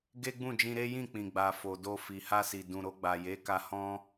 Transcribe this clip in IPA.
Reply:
ɡ e˦ ɡ͡b ũ˦˨ d͡ʒ ĩ˧ ɾ e˦ j ĩ˦˨ k͡p ĩ˨ ɡ͡b a˨ f o˨ d o˧ f i˨ h a˧ s i˨ d ũ˨ ɾ o˧ ɡ͡b a˨ j e˨˦ k a˧ h ɔ̃˦

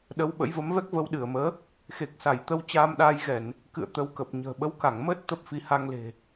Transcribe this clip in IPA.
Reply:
ɗ ə˨˦ w ɓ ə̰˧˥ j v ə˨˦ m v ɛ˦˥ k̚ v ə˧ w ɗ ɨ˧˩ ə̯ m əː˨˦ | x e˨˩ k̚ s a˧˩ j t̪ ə˧ w t͡ɕ aː˧ m ɗ aː˧ j ɣ ɛ˧˩˨ n | k ɨ̰˧˨ ə̯ t̪ ə˨˦ w k ə˨˩ p̚ ɲ ə̤ː˨˩ ɓ ə˨˦ w k a˧˩ ŋ m əː˦˥ t̚ t̪ ə˦˥ p̚ f i˨˦ h a˧ ŋ l e̤˨˩

